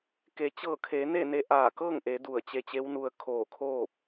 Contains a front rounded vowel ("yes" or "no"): no